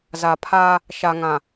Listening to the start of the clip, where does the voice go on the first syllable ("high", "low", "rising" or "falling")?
low